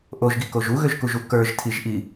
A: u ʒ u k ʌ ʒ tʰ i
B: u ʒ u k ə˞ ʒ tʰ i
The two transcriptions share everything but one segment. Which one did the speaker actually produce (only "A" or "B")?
B